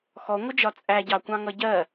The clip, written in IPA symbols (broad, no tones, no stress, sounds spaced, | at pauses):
x ɔ ŋʷ ɪ d͡ʒ ɒ t͡sʼ æ ɟ ɑ kʷ ɑ̃ ŋ ʌ ɟ ɜ